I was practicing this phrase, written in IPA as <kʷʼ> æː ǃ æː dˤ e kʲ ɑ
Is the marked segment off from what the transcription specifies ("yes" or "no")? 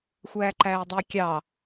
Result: yes